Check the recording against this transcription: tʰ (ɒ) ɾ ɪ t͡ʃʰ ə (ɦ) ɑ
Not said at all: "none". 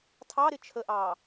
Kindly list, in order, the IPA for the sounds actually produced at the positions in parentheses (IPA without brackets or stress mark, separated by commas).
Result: ɑ, ʔ